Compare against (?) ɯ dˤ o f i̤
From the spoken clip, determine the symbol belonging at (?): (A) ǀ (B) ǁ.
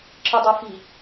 B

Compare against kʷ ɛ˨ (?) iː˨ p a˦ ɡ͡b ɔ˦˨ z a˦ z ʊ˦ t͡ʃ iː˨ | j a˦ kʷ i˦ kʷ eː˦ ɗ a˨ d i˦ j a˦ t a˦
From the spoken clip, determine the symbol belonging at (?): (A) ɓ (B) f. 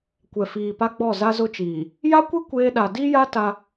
B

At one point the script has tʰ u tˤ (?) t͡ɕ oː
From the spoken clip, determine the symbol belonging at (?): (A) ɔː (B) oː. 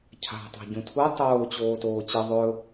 B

